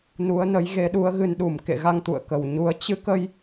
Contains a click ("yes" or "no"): no